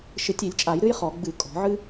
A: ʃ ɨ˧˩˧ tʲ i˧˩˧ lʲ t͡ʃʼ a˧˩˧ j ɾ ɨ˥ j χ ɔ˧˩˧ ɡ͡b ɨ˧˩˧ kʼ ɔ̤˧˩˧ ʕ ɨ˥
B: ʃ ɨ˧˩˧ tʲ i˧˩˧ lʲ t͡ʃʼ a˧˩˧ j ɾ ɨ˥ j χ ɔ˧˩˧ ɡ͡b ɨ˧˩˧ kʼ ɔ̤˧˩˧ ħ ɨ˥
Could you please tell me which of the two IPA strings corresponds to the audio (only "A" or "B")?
A